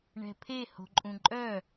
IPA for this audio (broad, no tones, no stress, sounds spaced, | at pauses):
ɳ ɛ̤ pʰ e h o̤ ǃʼ ũ ǃʼ œ